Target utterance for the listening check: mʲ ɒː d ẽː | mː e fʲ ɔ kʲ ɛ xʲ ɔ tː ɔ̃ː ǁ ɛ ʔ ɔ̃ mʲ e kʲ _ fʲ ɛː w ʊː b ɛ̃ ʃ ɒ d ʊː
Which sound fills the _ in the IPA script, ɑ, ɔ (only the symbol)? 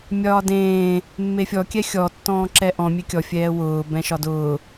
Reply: ɔ